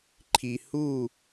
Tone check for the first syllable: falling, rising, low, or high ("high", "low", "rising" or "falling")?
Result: low